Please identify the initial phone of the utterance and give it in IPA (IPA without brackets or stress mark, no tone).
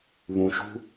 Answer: β